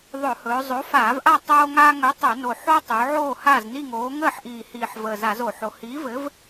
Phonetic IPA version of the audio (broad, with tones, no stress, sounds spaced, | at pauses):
ðˤ ɵ˧˩˧ h ɵː˩˧ zˤ o˨˥ f aː˧˩˧ v ʔ a˥˨ tˤ oː˦ ŋ aː˦ ŋ ɵ˨˥ tˤ ɵ˧˩˧ n o˨˩ ħ o˦ tˤ ɵː˩˧ ʕ oː˥˨ h a˥˨ z n i˥˨ ŋ oː˨˥ ŋ əː˥˨ ħ ʔ iː˨˩ h iː˨˩ ħ v əː˨˩ z a˧˩˧ z o˧˩˧ ħ o˩˧ h iː˨˥ v ɘ˨˥ v